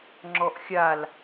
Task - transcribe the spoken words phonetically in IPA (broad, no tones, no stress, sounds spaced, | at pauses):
ŋ͡ǁ ɔ ʔ xʲ a l